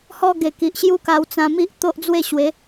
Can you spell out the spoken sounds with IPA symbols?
h ɔ˦ ɡ e˨˩ k i˨ ʔ ɕ j u˦ k a˧ w t͡s ã˧ m i˦ ʔ t̪ o˦ ʔ d͡z w e˥˧ ɕ w e˨˦

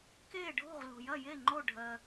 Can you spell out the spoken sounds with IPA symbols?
k eː˥˨ ɖʱ o̤˥˨ ʁ l o̤˨ j ɐ˥˨ j e˥˨ ŋ͡ǃ o˥˨ ɖʱ ɜ˨

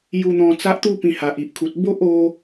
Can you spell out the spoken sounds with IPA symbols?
j u˧ n̪ ɔ̃˧ t͡s a˦ ʔ t̪ u˧ p ĩ˨˩ h a˨ ʔ i˨ ʔ kʰ u˨ t̚ b o˦ ʔ o˧

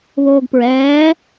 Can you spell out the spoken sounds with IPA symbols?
β oː ɡ p ɹ ɛː

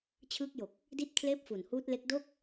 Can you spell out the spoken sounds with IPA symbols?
t͡ɕʰ ɯː˦˥ k̚ j o˨˩ k̚ | d i˥˩ t̚ kʰ l eː˥˩ p̚ f u˨˩ n h uː˦˥ t̚ l e˦˥ k̚ d o˥˩ k̚

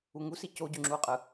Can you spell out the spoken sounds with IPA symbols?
u ŋ u s i c o ɟ y ŋ͡ǁ u qʼ ɯ

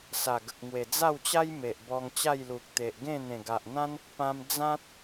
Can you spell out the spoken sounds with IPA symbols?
s a˨˩ ɡ ə˨ k̚ ŋ w e˨˩ d͡z a˥˧ w t͡ɕ a˦ j m e˨ ʔ b ɔ˧ ŋ t͡ɕ a˥˧ j l u˨ k̚ t̪ e˨ ʔ ɡ ẽ˥˧ n̪ ẽ˨˩ ɡ a˨ ʔ n̪ ã˦ n | p ã˧ m d͡z ã˦ t̚

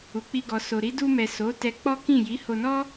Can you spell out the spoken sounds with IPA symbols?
u˨ k͡p i˧ ɡ ɔ˨ s o˨ ɾ i˨˦ d u˧ m ɛ˨ s o˨˦ t ɛ˧ k͡p ɔ˦ k ĩ˦˨ j i˨˦ h o˧ n ɔ˦

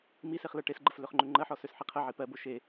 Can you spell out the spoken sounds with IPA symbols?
m i s e χ l ɜ ʈ e s ɡ͡ǃ ə f l ø χ ŋ͡ǃ ø ŋ͡ǃ ɜ ħ ɔ s ø s ħ i qʰ ɜ ʕ i p ɜ b o ʃ e

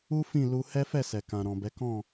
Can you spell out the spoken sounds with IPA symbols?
u˦ f ĩ˦˨ l u˧ h ɛ˦ f ɛ˦˨ s ɛ˨ k ã˨ ɾ ɔ̃˨ b ɛ˨˦ k ɔ̃˦˨

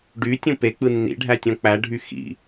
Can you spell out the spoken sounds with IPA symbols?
ɖ y tʲ ũ p e k͡p ɯ nː ḭ ɖʱ æ tʲ õ k͡p æ ɖʱ y x ḭ

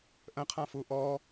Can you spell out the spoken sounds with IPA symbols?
ʔ ə̃ qʰ ã f u ʔ ɔ

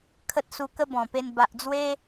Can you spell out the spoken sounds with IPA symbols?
kʰ ə˦ t̚ s u˧ k ə˦ b ɔ̃˨˩ p e˧ n b a˨ ʔ d͡z w e˦

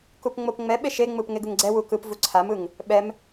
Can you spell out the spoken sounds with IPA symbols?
k u p ŋ͡m o p ŋ͡m ɛ ɓ e ʃ e ŋ͡m ɯ p ŋ e ɡ ɯ ŋ ɡ͡ǀ ɛ w u k ɯ p v u ǀʰ a m ɯ ŋ | ɓ ɛ m

